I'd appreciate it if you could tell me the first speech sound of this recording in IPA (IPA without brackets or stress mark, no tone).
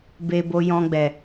b